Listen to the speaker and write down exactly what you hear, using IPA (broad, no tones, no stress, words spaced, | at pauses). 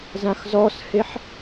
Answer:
zãxzɔsheħ